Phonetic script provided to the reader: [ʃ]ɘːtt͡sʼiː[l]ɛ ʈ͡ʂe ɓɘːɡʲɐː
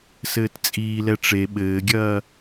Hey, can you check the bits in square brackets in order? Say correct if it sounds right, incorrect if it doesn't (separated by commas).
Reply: incorrect, correct